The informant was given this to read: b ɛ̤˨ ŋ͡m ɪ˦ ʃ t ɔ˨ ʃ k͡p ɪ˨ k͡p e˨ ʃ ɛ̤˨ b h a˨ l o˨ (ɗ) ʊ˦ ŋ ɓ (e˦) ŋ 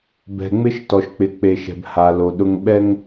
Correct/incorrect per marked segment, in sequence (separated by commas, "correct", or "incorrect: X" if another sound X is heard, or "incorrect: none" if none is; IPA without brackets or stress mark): correct, incorrect: ɛ˦